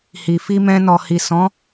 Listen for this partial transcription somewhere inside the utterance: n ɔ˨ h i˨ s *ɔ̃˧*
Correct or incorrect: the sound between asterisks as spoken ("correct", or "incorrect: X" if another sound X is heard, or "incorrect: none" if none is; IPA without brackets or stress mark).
incorrect: ɔ̃˨˦